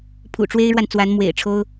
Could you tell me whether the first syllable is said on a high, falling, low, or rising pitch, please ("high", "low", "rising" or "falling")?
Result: low